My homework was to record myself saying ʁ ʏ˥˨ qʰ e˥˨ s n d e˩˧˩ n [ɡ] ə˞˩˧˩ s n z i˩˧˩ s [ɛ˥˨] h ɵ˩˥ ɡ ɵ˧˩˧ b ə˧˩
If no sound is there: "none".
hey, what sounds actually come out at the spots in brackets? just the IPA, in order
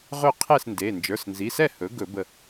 d͡ʒ, ɛ˥˨

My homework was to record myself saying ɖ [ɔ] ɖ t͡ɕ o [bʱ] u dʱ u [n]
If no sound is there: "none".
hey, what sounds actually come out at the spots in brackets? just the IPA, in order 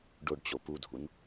o, p, n

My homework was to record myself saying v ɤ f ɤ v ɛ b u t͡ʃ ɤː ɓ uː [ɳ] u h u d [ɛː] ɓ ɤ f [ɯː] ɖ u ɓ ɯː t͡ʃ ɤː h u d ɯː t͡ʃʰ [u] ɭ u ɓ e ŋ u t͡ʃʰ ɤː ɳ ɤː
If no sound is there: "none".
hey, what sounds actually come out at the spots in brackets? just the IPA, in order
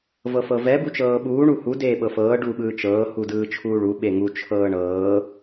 ɳ, eː, ɤː, uː

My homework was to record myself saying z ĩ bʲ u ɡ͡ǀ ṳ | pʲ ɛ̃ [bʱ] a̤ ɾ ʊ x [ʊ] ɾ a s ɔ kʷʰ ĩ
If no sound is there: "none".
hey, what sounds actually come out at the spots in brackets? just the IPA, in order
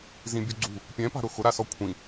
p, ʊ

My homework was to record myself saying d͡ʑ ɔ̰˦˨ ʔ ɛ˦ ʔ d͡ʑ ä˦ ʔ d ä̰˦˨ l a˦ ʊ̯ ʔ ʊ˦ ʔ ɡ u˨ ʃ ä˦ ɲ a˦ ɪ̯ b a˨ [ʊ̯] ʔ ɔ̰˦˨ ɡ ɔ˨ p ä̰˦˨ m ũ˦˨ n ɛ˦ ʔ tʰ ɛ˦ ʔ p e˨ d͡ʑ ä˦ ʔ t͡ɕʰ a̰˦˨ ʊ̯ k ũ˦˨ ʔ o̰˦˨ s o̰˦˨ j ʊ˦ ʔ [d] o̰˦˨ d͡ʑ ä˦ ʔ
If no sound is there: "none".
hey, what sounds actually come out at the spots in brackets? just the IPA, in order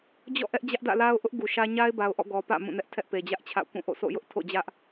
ʊ̯, tʰ

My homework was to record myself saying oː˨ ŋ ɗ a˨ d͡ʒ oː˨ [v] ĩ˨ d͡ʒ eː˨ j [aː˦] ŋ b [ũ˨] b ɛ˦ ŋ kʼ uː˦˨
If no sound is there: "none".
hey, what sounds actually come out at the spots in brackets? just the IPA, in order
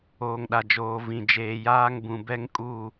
v, aː˦, ũ˨

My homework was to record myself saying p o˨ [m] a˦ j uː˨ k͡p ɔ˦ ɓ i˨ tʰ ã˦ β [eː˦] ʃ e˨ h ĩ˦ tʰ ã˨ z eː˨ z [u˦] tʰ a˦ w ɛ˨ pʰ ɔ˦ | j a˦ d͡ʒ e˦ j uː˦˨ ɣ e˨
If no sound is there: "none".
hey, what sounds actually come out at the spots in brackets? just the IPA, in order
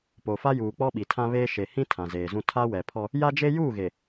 f, eː˦, ũ˦

